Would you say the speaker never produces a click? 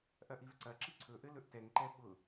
no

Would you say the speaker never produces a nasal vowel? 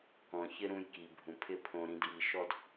no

